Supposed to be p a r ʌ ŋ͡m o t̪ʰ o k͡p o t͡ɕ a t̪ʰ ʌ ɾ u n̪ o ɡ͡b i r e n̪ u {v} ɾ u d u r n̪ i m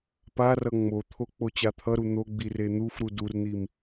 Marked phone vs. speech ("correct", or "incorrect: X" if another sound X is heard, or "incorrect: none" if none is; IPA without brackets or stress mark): incorrect: f